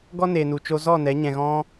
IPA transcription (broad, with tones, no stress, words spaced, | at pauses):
ɡɔ˦ne˨nu˨t͡ʃo˧ zɔ˦˨nɛ˨˦ ɲɛ̃˨ɣɔ̃˧